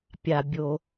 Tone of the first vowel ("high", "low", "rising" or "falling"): low